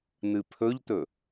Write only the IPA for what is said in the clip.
n̪ ɨ pʰ ɵ ʎ t̪ ɵ

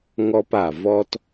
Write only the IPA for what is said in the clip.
ŋ ɔ˧ p a˨ v ɔ˧ t

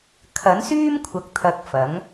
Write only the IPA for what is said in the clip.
kʰ ɐ˨˥ n s yː˥ m kʷʰ ɐ˨˥ k̚ t̪ʰ ɐ˨˥ k̚ f ɐ˨˥ ŋ

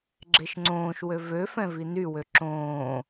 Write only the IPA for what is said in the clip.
ɡ͡ǁ e ʃ ŋ͡ǀ õː ʃ w ø v ø f ɛ̃ v i n y w ø ǁ õː

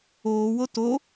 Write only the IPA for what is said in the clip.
oː w o t o

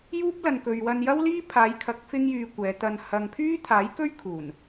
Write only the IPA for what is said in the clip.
j uː˥ p̚ l ɐ˨ n k ɵ˨ ɥ w ɐ˧ n j ɐ˥ w l iː˥ pʰ aː˨˧ j kʰ ɐ˨˥ k̚ f ɪ˥ ŋ j yː˧ kʷ ɛː˨˧ t̪ ɐ˧ n h ɐ˨ ŋ pʰ yː˥ t̪ʰ aː˨˥ j k ɵ˥ ɥ kʰ uː˨˩ n

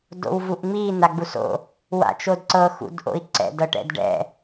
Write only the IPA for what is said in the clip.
d o̰ w v u ʔ ŋ͡m i n̪ a ɡ͡b u s o̰ | w a̰ t͡ʃ o d ǀ ɤ x ṵ d ʔ o̰ i̯ ǀ ɛ̰ d ɤ ʈ ɛ̰ d ɖ ɛ̰

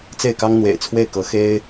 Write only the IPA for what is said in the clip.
t͡s e˥˩ ɪ̯ k ɑ˥ ŋ n̪ w ḛ˨˩ ɪ̯ t͡sʰ w e˥˩ ɪ̯ k ɤ˧˥ x e˥ ɪ̯

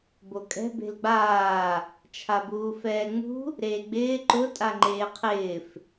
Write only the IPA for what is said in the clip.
b o kʼ ɛ̤ b e̤ l ɡ͡b aː | t͡ʃʰ a b uː f ɛː ŋ͡m ṳ | ɾ eː ɡ͡b ɪː ǃ ʊ tʼ a ŋ͡ǃ eː qʰ ɪː f

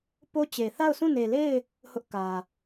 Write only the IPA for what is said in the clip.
p o˦ t͡ɕ e˨ θ a˦˨ ʊ̯ s ũ˦˨ n e˨ l e˦˨ ɪ̯ | h ʊ˦ ʔ k ä˨

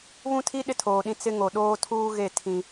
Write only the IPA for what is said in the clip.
β ũ˦ tʰ i˦ ɗ ɪ˦ tʰ oː˨ ɗ ĩ˦ t͡s ɪ˦ ŋ o˨ ɗ oː˦ tʰ uː˦ ɣ e˦˨ tʰ ĩ˦

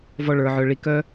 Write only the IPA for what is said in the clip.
v ɔ˧ ɭ ə˞˨ ʕ œ˨ ɭ i˨ k œ˦

